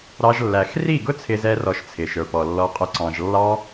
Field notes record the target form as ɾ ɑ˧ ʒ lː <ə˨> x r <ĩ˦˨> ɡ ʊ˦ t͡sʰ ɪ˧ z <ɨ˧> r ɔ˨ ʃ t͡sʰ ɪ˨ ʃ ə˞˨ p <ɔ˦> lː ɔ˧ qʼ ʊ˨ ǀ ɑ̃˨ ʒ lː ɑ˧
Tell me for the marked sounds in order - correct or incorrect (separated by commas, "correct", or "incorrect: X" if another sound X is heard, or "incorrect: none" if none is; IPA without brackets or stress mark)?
incorrect: æ˨, incorrect: i˦˨, incorrect: ɛ˧, incorrect: ɔ˨